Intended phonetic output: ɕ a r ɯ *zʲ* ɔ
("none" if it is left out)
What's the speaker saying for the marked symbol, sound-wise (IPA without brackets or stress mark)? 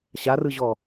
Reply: ʑ